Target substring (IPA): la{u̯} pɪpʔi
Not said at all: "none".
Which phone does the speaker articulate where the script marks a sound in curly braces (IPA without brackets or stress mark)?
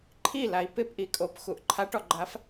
i̯